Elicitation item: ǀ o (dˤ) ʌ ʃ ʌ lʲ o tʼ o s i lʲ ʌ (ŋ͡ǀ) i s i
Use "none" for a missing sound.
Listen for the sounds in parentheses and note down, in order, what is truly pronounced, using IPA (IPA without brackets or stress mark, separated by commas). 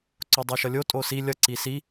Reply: dˤ, ǀ